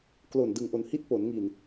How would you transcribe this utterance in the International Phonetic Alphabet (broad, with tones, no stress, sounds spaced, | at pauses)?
k l o˨˩ n d ɯ˨˩ ŋ ʔ o˨˩ n h i˦˥ t̚ p o˩˦ n ŋ i˨˩ n